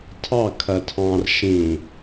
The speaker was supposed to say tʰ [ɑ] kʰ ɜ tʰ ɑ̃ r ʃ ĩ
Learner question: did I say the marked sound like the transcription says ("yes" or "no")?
yes